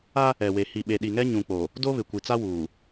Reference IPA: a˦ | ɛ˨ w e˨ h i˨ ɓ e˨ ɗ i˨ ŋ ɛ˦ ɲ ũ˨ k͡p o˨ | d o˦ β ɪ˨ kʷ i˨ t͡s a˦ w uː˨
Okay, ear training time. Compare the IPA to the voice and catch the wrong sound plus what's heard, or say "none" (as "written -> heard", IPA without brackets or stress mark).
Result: none